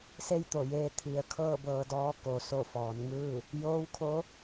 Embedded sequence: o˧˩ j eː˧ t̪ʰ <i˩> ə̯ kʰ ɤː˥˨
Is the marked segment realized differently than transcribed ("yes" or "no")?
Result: yes